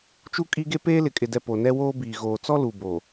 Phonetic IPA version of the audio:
t͡ʃu˦kʼi˦ɡe˦ peː˦lɪ˨kʼɪ˨dɛ˨ po˨nɛ˦woː˦biː˨ ɣoː˨t͡sɔ˦ lu˨bo˨

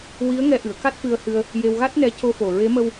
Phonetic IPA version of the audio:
wi˧˥ə̯ŋɛ˧ʔɨ˨˩˨ə̯ ka˦˥t̚fɨ˧ə̯hɨ˧ə̯ | je˧wɣa˦˥t̚nɛ˧˥ co˧fo˨˩ɹe˧˥ mə˧w

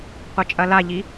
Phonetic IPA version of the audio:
qʷɐt͡ʃʼɐlaʎi

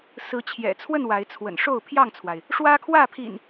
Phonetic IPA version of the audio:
sɹ̩˨˦ t͡ɕʰjɛ̰˨˩t͡sʰwə˥˨n wa˨˦ɪ̯ t͡sʰwə̰˨˩n ʂo˥˨ʊ̯pʰjɑ˥˨ŋt͡sʰwa˩ɪ̯ | ʂwä˦kʰwä˥˨pʰḭ˨˩n

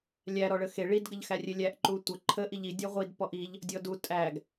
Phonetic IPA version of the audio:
lʲæ ɾɔɭəxe ɭid ɡəʎxærʲelʲæʔ ǃutʷə ǃʰə ʔiʎi dʲɔʁʷid pɔʔiʎ | dʲɔdu tʼæɡ

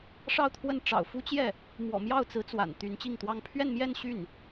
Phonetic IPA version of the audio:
ʂɑ˥˧ʊ̯t̪ʰwə˥˩n ʈ͡ʂɑ̰˨˩ʊ̯fu˥t͡ɕjɛ˥˩ | mwɔ̰˨˩mjɑ˥˩ʊ̯t͡sɹ̩˧˥ t͡swa̰˨˩nt̪y˧˥n t͡ɕi˥˩ŋt̪wɑ˥ŋ pʰɥɛ˥˧nmjɛ˥˧n ɕy˥˩n

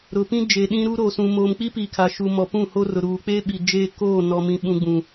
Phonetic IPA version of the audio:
ɾʊ˨pĩ˦d͡ʒeː˨ ɗĩ˦ɾu˦ɾoː˨sũ˨ moː˨mk͡pi˦pi˨ kʰa˨ʃuː˨mɔ˨ pũ˦˨ho˦rʊ˨ ɾuː˨k͡pe˦ ɓi˨d͡ʒeː˦koː˦˨ nɔ˨mĩ˨ ɓũ˨ɡ͡bũ˨

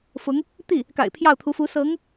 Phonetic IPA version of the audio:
fʊ˧˥ŋ | t̪i˥˩ | ka̰˨˩ɪ̯pʰjɑ˥˩ʊ̯t̪ʰu˧˥fu˧˥ sɤ˧˥ŋ

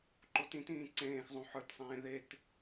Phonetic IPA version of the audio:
ǃotĩtĩː ǀẽːxzˤõ ħə˞tsˤẽː ðet

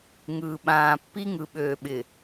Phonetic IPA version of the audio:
ŋɯː˨ɓãː˨ pːi˦ŋɯ˨ ɓøː˨ɓɪ˨

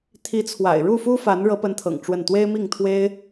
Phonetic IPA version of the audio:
t̪ʰi˧˥t͡sʰwa̰˨˩ɪ̯ ɻu˥˩fu˥fa˧˥n ɻɤ˧˥pə˧˥nt̪ʰɤ̰˨˩ŋ ʈ͡ʂwə˥˩n t̪we˥ɪ̯mi˥˩ŋt̪ʰwe˥ɪ̯

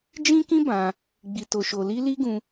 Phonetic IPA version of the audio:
d͡ʒĩ˦kĩ˦ bã˧ | ɡ͡bi˨to˨ʃo˨li˧ li˦ɡũ˧

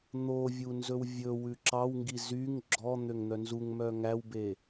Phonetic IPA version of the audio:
n̪ovʲu nzɵwvʲɵwʉ ǁɑwŋɡi zyŋ ɡ͡ǁɔ n̪øŋn̪œnzuŋmœ ŋæwbe

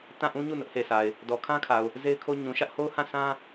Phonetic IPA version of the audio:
tã˦˨ʔũ˦ɲu˦˨ nʊ˦ʔhe˨sa˨ɪ̯ | dɔ˨kʰã˦kʰa˨ʊ̯ | ze˦ɪ̯kʰo˦ ɲũ˨ʃä˦ʔho˦ʊ̯hã˦˨ sʰã˦

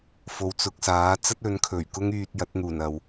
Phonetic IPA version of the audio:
fo˨˥wt͡sʊ˨k̚saː˨˥ t͡sɐ˥t̚ ɵ˨˥nkʰɵ˨˩ɥ kʊ˥ŋyː˧t̚ jɐ˨˥t̚n̪uː˨˩n ɐ˨w

